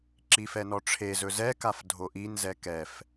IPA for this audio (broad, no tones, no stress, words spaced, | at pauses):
ǁifɛnɔʈ͡ʂʰe zɵzɛ kafdʱoʔin zɛkɛf